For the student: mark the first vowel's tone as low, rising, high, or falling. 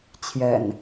low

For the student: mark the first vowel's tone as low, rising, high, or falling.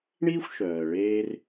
high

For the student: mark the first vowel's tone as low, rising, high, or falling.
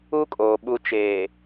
high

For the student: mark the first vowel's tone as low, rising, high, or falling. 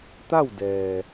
falling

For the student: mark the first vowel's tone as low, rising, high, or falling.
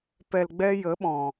low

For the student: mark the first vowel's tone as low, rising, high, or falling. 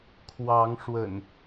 rising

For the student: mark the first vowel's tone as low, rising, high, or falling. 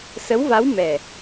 rising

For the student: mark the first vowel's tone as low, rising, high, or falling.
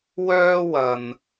high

